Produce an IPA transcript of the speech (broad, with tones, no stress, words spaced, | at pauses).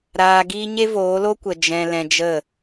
ɾaː˧ɡiː˦ ɲe˦voː˨˦lo˦kʷə˨ d͡ʒɛ̃˧lɛ̃˧d͡ʒə˦˨